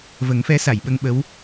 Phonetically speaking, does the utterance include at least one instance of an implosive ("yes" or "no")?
yes